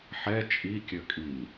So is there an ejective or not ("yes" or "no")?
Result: yes